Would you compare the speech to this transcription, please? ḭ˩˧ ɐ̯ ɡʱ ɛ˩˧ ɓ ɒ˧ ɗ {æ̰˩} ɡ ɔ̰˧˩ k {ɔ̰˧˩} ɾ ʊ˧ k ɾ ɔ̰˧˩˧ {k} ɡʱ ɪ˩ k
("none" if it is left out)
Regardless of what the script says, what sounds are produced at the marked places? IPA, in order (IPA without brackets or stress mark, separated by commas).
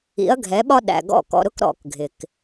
æ̰˩, ɔ̰˩, k